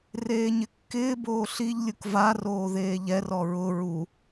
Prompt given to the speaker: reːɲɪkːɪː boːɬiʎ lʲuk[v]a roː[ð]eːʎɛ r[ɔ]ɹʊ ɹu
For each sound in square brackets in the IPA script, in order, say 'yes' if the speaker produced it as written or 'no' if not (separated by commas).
yes, yes, yes